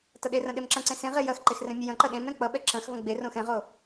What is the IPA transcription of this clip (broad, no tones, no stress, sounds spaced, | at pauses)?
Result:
t ʌ ɗ e r ɐ̃ ɗ e m ǁ ɐ̃ ǀ ẽ s ẽ ʁ e j ɐ x ǃ e x r ɛ̃ mʲ ɐ j ɐ̃ ǃ ɐ ɗ ẽ m ɾ ɛ̃ k͡p ʌ ɓ ɛ ǁ ɐ̃ x v ɐ̃ ɡ͡b e r õ x ɛ̃ ʁ o